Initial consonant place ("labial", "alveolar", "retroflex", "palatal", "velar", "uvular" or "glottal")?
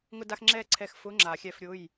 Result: velar